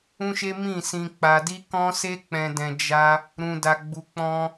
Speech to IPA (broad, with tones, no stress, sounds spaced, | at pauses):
ũ˦ ʃ e˦ m ĩ˦˨ s ĩ˧ k͡p a˧ d i˦ k ɔ̃˦ s e˦ k͡p ɛ̃˧ d ɛ̃˧ d͡ʒ a˦ | ɾ ũ˧ d a˧ ɡ͡b u˧ k͡p ɔ̃˧